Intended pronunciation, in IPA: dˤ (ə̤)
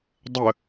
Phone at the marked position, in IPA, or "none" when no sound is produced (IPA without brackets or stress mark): ə